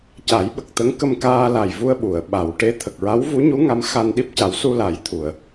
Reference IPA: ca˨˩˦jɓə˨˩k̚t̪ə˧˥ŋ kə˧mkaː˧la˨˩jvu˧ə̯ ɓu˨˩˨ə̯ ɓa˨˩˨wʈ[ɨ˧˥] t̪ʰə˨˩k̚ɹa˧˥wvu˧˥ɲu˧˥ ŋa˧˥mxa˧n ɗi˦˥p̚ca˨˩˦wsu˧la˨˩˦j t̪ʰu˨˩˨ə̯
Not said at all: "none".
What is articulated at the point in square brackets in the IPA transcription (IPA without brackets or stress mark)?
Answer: e˧˥